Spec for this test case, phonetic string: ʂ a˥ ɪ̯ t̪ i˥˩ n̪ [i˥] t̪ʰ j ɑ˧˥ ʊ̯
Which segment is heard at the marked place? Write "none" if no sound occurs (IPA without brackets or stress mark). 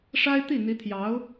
i˧˥